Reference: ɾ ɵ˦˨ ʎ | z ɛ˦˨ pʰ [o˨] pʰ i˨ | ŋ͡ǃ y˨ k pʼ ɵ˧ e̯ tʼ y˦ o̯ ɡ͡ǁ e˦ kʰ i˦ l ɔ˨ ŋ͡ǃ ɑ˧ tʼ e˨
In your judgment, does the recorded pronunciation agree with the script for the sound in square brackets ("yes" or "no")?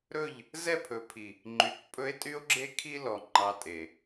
no